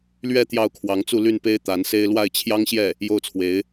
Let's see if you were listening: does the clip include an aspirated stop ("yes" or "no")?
yes